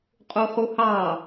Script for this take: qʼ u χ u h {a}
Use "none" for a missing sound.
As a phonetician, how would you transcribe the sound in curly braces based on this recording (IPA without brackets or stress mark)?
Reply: ɑ